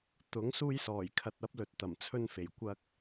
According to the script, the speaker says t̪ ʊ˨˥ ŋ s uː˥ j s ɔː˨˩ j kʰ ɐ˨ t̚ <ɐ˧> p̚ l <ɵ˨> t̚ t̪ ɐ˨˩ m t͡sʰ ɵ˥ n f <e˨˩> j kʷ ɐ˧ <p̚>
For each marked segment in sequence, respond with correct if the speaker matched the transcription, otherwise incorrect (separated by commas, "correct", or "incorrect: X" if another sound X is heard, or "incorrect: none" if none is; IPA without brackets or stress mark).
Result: incorrect: ɐ˨˥, correct, correct, incorrect: k̚